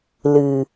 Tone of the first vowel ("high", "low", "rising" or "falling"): low